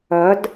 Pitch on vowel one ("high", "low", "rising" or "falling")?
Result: rising